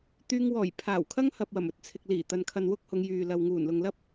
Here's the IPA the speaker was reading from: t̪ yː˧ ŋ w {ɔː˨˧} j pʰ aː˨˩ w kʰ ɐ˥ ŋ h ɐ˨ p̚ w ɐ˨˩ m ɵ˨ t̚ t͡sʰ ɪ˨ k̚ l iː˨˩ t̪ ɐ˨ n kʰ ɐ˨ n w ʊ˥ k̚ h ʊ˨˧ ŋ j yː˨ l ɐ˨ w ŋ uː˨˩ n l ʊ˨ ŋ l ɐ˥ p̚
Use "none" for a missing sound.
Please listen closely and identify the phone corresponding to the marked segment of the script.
ɔː˨˩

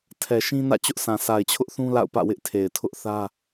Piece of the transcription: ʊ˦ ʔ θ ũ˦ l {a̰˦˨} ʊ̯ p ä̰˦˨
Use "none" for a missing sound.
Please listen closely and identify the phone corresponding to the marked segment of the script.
a̰˦˨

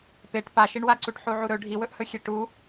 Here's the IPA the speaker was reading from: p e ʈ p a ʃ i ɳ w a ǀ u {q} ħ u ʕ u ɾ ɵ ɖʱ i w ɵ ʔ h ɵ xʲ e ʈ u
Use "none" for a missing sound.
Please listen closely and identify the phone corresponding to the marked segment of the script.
ʈ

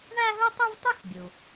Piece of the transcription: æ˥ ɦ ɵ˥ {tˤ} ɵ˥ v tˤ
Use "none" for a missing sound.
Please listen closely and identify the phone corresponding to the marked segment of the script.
tˤ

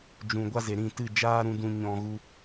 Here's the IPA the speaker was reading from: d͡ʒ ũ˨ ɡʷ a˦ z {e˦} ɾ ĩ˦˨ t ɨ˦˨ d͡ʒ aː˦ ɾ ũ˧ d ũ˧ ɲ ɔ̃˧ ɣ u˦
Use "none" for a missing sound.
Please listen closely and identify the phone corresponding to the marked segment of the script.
e˨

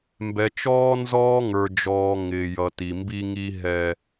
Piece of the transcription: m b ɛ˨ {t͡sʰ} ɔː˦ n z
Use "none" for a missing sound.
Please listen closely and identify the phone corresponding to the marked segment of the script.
t͡ʃ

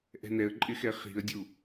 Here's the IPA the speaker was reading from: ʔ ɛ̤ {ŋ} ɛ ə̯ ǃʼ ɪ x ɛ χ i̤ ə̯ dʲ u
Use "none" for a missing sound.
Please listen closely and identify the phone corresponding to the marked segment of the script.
n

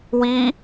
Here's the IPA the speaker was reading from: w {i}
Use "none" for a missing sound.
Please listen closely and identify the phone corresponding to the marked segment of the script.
i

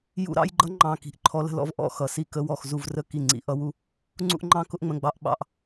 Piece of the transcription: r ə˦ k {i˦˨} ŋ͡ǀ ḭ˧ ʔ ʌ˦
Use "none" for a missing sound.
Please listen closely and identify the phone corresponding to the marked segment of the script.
i˨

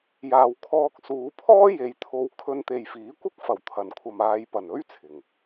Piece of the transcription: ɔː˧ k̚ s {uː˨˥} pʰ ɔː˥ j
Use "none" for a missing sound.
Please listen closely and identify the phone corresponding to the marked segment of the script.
uː˨˧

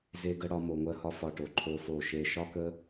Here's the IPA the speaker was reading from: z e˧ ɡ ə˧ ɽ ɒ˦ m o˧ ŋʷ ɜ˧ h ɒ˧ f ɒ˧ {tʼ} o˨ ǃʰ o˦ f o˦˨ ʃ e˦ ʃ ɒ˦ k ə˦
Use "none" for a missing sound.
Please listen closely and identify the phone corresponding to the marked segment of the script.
ʈ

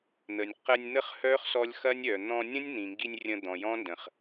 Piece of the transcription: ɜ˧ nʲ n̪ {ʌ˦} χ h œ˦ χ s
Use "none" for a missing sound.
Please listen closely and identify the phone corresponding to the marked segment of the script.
ə˦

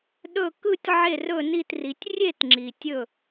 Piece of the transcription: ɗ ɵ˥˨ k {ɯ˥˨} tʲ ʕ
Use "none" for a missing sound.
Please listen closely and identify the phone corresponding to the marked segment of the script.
ɯ˥˨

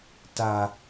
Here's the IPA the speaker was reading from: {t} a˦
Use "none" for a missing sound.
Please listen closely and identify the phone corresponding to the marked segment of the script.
t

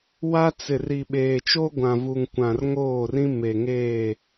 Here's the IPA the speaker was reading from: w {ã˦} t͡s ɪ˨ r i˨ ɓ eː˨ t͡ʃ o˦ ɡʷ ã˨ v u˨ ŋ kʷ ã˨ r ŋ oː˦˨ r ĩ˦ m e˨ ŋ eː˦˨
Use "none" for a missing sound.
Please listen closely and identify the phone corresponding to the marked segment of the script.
a˦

